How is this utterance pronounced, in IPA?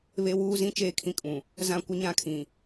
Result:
βe˦wuː˦zĩ˦ t͡ʃeː˦kʰĩ˦kʼũ˨ | zã˦kʷɪ˦ɲã˦˨kʰĩ˨

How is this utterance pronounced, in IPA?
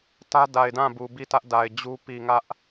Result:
tä˦da˨ɪ̯dã˦˨bu˨ bi˦˨tä˦ʔda˨ɪ̯d͡ʑu˦ pi˨ŋä˦ʔ

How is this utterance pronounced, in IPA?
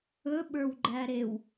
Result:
ɵ ɓə˞wɡ͡ǃæɾew

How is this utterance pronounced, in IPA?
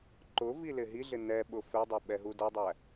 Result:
ǃʊvilɪ ɦiɮɪ nɛɓʊ fɛdˤɛɓɛɦu dʌdˤæ

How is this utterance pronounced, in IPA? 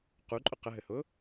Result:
quǃʼʊ qəɦɘhʊ

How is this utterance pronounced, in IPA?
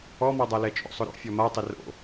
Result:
ɔmɔdˤalɛ t͡ʃʼo̰sˤʊɾo̰ fʲɔmatˤɪ ro̰

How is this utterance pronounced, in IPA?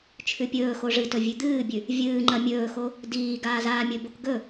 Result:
t͡ʃʰʉpʲɵːxo ʐɨtɵ vʲʉd̪ɨːbʲʉ | vʲɨːŋ͡ǃɐ mʲɵːxo | diː ɡaːzaːmʲɵbok ɡɵ

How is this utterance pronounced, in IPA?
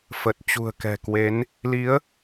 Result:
fə˨˩t̚t͡ɕṳ˨˩ə̯kɛ̤˨˩kwe˨˦n | li˨˦ə̯

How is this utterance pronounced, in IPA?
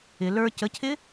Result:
ɪ lə˞ cəcʰɪ

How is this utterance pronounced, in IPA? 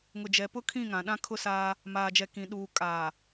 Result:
ŋʊ˨d͡ʒɛ˨pʊ˦ kʰĩ˦˨ŋã˨ɗã˦ kʰʊ˦saː˦ | maː˨d͡ʒɛ˨kĩ˨ ɗuː˨ kʼaː˨

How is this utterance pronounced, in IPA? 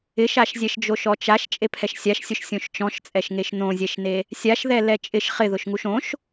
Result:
ɪʃaʃzʲɛʃ d͡ʒoʃɔt͡ʃaʃ t͡ʃʼepʰɛʃsʲaʃsʲʊʃ sʲõʃt͡ʃɔ̃ʃt͡sʼɛʃ ŋeʃnõzʲɛʃne | sʲaʃðɛ lɛt͡ʃʼɪʃ χɪðʊʃŋuʃ õʃ

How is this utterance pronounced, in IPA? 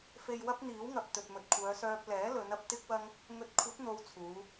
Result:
fe˨jwɐ˧p̚ n̪iː˨˥wŋɐ˨p̚ t̪ɵ˨t̚mɵ˨t̚kʷʰœː˨˧sœː˧p̚ lɛː˨˥lɵ˨˧nɐ˧p̚ t̪ɪ˥k̚wɐ˥ŋ | ŋɵ˨t̚kʷʰɐ˨˥t̚n̪o˨˧w t͡sʰuː˨˧

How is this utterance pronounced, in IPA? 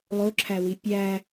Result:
lˠoǁʰæwi pʲæ

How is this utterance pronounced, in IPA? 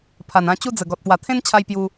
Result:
pʰa˨˩nã˧ t͡ɕu˦d͡zə˨˩ ɡɔ˨t̚pwa˨˩ t̪ʰẽ˦nt͡ɕʰa˧j pju˧

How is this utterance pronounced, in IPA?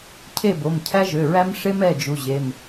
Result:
cʰe˦˨bo˩˧˩m cʰæ˦ʒø˩˧˩ɹæ˦m ʂe˦mɛ˩˧˩ d͡ʒu˩˧˩ʑe˩˧˩m

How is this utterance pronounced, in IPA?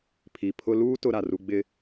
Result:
pʰi˨pʰʊ˦ luː˦ tʊ˦ɾa˨ru˦ ɡ͡bɪ˦

